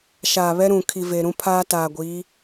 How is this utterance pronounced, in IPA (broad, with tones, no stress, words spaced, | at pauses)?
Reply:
ʃaː˨βɛ˦ ɾũ˨kʰi˨ ve˨ ɾũ˦pʰaː˦taː˨ɡʷiː˨˦